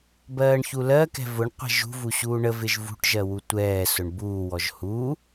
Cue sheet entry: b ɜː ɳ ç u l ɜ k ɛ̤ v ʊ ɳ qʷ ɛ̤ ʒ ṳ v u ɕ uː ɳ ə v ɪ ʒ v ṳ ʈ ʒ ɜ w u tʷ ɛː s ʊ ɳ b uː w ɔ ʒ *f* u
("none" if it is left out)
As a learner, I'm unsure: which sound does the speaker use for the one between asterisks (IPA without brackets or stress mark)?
h